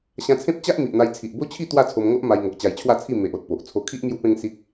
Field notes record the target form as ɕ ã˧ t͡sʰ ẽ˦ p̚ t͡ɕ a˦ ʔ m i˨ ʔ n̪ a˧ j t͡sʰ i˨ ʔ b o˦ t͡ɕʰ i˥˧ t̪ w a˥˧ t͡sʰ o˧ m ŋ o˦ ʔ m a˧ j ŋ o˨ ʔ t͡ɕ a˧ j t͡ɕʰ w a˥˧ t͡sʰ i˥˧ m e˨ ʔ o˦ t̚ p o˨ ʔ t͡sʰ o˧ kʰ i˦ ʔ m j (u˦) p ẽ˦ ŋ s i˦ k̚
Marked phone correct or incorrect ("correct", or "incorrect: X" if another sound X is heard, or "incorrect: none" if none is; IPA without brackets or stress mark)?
correct